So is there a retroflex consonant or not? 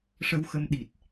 yes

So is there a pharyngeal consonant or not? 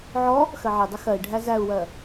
yes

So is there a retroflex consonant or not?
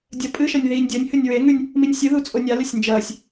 no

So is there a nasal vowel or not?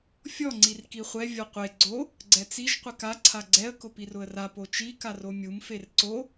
no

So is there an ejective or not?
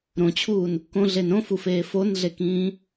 no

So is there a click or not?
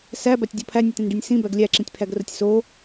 yes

